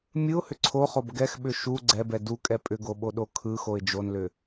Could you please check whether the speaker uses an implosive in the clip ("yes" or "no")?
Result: yes